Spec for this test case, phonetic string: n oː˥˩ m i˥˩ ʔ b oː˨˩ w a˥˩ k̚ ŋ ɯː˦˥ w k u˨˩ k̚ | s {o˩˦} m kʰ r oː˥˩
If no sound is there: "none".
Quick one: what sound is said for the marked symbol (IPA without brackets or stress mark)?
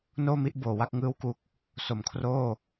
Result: o˩˦